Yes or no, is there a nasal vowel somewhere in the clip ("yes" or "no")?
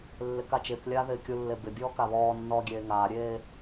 no